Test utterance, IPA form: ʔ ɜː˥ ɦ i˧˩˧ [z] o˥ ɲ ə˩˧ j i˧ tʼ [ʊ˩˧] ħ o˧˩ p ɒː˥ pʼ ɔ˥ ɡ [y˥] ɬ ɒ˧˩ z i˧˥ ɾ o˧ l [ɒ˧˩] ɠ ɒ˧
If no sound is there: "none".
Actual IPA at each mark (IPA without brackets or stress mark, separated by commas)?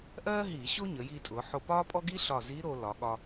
ɕ, ʊ˩˧, i˥, ɒ˩˧